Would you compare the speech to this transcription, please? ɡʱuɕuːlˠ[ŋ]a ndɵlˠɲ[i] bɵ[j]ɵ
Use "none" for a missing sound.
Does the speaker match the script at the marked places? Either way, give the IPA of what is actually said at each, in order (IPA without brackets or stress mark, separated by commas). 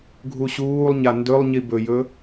ɲ, i, j